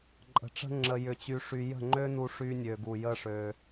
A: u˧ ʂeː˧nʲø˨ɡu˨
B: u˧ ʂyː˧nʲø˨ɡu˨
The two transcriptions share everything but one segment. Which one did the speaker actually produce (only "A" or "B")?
B